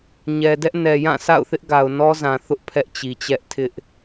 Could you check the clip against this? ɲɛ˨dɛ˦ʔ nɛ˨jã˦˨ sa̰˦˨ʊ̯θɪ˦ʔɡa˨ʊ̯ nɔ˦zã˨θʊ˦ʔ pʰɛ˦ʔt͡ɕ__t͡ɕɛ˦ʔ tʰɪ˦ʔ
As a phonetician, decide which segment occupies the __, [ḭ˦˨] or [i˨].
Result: i˨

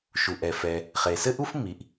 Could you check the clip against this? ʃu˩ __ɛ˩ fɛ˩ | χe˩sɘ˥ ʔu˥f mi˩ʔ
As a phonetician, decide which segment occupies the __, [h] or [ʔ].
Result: ʔ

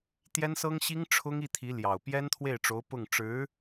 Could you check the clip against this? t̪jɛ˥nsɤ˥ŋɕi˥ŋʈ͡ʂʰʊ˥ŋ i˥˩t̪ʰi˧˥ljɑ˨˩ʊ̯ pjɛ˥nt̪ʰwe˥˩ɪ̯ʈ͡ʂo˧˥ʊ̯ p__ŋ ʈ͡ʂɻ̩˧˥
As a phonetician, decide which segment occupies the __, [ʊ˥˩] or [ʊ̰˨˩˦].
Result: ʊ˥˩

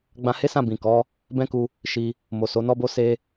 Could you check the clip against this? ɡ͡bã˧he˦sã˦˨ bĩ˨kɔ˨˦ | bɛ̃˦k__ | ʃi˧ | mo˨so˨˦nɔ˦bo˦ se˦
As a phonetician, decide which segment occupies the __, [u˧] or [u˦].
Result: u˧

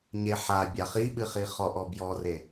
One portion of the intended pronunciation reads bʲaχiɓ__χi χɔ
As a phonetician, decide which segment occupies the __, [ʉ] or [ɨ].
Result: ɨ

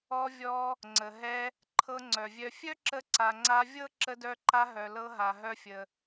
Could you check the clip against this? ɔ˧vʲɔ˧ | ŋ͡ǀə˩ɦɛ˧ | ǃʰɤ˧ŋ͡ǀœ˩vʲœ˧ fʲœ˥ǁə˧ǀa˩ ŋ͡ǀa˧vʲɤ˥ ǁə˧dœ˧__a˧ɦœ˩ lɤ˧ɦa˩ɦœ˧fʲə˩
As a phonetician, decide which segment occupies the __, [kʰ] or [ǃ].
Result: ǃ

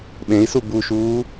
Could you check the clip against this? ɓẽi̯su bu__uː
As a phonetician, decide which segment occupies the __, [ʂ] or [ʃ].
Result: ʃ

